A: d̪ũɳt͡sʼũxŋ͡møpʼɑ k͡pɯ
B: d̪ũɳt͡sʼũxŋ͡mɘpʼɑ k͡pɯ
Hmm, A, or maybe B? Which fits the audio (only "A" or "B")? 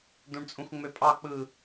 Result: A